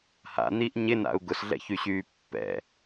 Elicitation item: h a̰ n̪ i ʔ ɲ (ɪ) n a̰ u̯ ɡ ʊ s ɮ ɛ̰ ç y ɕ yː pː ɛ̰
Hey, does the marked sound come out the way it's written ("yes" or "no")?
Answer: yes